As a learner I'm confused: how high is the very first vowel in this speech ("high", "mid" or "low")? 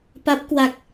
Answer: low